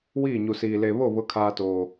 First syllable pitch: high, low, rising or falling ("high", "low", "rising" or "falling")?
falling